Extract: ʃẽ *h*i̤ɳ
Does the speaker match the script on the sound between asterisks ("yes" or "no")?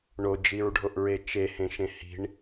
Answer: yes